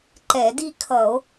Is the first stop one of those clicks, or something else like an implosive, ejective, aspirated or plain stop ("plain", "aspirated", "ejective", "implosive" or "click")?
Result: click